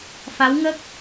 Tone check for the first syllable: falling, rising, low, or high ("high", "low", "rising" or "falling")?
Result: rising